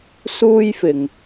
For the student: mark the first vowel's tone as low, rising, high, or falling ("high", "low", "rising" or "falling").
high